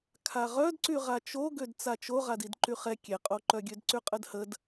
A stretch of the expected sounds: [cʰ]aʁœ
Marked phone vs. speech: incorrect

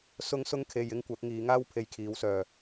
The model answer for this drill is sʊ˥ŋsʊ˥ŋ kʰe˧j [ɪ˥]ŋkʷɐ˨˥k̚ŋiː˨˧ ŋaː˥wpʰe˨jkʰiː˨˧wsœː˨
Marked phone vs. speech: correct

